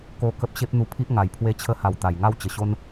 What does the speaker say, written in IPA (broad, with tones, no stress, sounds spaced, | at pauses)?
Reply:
k o˥˧ k ə˦ p̚ ɕ e˦ p̚ n̪ u˧ pʰ i˦ ʔ ŋ a˨˩ j pʰ w e˧ t͡ɕʰ ə˧ h a˨˩ w t̪ a˨˩ j ŋ a˦ w t͡ɕ ə˨˩ ɕ o˦ n